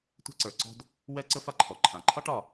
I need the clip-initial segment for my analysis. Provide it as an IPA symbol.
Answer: tʷ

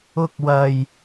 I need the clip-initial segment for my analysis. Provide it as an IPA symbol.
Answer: ʊ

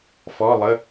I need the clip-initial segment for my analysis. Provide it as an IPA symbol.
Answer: f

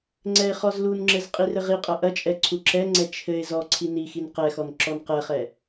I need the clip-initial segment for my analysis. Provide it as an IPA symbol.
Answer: ŋ͡ǀ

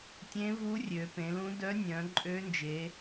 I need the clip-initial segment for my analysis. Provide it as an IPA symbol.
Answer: tʲ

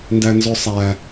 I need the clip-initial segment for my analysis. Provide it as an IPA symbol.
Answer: n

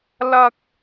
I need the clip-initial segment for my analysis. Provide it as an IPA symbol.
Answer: l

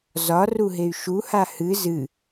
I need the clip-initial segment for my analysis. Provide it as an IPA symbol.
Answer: z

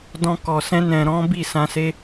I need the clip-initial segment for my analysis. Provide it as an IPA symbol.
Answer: d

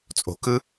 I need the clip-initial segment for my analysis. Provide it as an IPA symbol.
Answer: t͡sʼ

